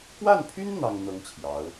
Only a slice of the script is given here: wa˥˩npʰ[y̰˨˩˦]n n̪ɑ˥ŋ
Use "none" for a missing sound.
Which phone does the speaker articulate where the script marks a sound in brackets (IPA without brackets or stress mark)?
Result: y˥